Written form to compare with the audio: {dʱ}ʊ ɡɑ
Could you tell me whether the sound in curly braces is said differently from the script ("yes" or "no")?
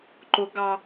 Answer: yes